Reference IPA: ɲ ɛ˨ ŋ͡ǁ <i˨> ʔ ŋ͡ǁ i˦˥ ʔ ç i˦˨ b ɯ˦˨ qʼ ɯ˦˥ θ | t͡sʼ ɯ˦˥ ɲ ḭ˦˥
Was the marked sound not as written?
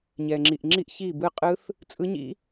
no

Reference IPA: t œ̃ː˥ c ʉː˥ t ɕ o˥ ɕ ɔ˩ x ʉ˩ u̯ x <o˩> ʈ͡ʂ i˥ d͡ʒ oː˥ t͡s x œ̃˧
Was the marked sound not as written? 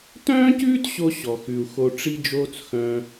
yes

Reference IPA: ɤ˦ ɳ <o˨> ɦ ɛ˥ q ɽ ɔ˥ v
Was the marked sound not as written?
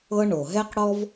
no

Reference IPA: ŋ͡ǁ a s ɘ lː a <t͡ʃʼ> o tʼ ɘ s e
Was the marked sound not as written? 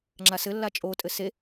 no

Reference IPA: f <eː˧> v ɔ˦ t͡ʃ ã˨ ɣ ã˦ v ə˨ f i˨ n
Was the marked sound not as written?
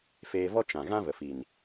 no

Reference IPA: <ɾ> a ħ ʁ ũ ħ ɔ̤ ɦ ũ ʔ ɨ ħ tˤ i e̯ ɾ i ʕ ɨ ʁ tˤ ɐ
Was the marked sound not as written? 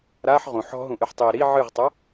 no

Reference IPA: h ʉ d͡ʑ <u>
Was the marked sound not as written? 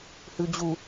no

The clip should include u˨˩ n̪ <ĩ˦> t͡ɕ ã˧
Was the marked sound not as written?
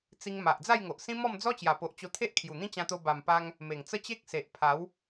no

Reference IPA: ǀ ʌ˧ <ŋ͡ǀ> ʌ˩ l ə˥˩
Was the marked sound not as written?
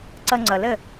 no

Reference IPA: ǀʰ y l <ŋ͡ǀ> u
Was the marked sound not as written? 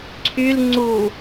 no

